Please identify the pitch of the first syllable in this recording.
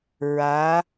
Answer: rising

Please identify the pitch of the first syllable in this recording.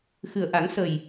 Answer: low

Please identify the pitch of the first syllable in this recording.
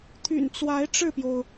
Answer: low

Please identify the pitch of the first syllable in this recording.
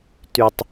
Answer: low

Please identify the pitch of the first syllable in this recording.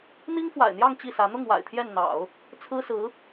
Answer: high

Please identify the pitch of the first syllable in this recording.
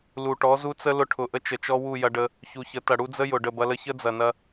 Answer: low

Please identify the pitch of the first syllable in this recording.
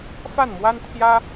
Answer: falling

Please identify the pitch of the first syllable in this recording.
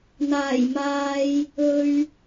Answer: low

